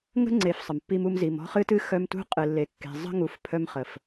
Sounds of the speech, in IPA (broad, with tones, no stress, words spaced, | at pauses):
ŋə̤˦ŋ͡ǀe˨f sˤə˨mpːi˦mu˦m zi˨m ɔ̤˦χɨ˦tɨ˦ xœ˦m tṳ˦qʼɨ˨lːe˨kːe̤˨ zˤə̤˦ŋu˨f pʰœ˦mχə˨f